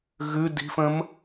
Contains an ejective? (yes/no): no